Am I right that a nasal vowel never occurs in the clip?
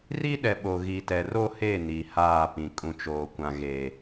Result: no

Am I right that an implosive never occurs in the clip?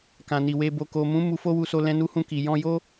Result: yes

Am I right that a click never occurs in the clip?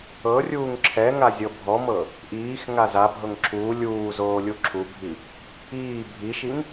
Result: no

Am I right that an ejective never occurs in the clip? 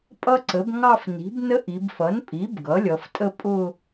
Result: no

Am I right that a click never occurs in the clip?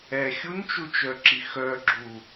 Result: no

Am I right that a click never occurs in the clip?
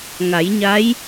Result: yes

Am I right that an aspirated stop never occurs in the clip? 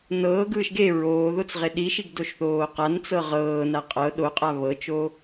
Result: yes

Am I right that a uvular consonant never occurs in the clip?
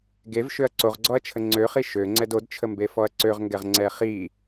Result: no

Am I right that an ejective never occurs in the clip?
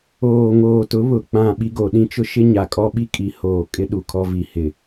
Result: no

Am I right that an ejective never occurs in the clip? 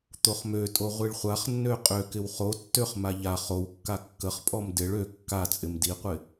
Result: no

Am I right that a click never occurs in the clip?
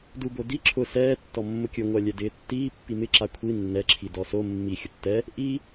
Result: no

